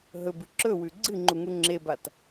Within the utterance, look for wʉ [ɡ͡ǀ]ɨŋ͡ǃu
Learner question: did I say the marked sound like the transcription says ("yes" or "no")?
yes